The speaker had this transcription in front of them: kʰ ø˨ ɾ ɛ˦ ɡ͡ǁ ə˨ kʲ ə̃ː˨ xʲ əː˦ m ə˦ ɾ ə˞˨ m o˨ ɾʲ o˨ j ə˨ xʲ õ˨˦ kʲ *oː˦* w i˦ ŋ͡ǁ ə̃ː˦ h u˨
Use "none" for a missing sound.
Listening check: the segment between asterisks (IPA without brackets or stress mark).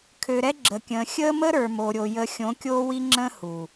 oː˦